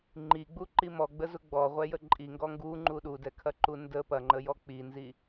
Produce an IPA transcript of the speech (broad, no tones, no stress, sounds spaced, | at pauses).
ŋ͡ǃ i ɡ͡b u ǃ i m ɔ ɡ͡b ə z ʊ ɡ͡b ɔ ʁʷ ɛ j ə ǃʼ i ŋ ɡ ɔ ŋ ɡ u ŋ͡ǃ u ɗ u d ɛ kʰ ɐ ǃ u n d ə p ɐ ŋ͡ǃ ə j ɔ k͡p i n z i